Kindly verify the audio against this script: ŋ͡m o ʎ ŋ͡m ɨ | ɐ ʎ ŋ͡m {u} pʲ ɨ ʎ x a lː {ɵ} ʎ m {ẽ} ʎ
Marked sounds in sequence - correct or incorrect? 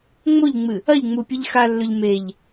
correct, correct, incorrect: e

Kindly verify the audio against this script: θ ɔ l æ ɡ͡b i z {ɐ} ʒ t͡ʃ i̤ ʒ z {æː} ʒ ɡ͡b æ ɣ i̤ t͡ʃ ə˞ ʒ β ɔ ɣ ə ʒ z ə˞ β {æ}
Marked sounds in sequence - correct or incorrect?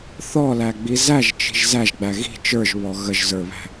incorrect: æ, incorrect: æ, incorrect: æ̤

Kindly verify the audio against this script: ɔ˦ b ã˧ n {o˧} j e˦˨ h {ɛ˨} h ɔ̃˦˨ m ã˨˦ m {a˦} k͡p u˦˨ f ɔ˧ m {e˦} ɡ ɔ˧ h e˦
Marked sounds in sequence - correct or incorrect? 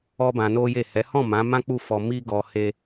incorrect: o˦, incorrect: ɛ˨˦, incorrect: ã˦, incorrect: i˦

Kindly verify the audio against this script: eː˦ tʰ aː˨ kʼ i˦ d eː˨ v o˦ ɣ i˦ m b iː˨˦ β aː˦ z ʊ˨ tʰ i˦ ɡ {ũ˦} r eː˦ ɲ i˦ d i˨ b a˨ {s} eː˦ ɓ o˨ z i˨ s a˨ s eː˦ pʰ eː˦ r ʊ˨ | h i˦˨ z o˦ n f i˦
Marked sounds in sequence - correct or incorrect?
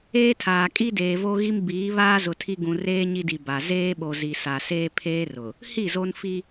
incorrect: ũ˨, incorrect: z

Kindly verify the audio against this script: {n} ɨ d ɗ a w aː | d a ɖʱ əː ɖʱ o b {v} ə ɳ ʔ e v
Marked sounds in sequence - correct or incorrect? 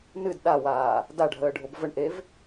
correct, correct

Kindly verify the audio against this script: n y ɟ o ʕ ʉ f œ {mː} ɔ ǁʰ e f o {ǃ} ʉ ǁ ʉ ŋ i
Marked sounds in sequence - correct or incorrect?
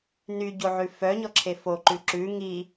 incorrect: ɲ, correct

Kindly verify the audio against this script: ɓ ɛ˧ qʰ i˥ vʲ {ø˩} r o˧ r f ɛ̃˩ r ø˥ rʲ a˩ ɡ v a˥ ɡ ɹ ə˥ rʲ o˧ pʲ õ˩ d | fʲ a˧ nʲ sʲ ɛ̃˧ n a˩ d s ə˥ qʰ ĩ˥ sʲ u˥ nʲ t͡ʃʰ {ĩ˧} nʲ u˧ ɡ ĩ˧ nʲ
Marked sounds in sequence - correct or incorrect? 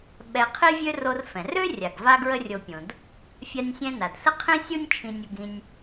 incorrect: ø˥, correct

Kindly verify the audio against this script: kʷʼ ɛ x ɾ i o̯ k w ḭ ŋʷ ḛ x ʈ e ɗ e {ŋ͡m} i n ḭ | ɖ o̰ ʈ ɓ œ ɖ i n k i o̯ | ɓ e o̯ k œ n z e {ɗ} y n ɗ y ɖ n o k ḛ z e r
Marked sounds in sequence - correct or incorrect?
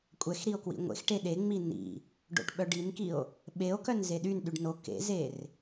correct, correct

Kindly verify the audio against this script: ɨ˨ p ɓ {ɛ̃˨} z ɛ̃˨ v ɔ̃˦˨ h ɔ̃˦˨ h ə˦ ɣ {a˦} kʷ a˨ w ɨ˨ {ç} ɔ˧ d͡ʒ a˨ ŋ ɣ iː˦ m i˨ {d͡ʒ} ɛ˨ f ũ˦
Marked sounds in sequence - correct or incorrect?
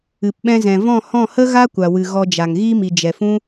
incorrect: ɛ̃˧, correct, incorrect: ɣ, correct

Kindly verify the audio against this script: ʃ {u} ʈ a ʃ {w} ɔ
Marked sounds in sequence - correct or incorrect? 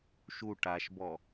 correct, incorrect: b

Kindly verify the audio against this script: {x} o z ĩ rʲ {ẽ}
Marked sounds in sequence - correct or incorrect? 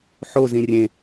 incorrect: ħ, correct

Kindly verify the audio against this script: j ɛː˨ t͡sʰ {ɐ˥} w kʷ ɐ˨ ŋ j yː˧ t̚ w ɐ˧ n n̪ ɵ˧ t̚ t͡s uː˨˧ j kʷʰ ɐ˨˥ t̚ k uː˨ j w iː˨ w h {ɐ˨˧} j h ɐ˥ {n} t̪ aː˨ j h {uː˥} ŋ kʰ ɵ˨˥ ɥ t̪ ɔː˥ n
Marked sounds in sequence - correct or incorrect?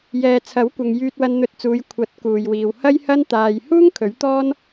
incorrect: ɐ˨˥, incorrect: ɐ˥, correct, correct

